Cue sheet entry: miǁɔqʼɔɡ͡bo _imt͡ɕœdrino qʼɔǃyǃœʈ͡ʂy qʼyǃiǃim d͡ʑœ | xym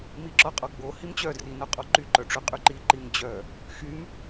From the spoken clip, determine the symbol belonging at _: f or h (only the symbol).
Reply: h